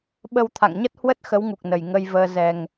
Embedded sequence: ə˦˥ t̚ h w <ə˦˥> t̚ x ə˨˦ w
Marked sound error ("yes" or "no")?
no